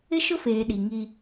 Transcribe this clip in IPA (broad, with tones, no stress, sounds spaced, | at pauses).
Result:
ɪ˦ ʃ ʊ˦ f eː˨ ɗ i˨ ŋ i˦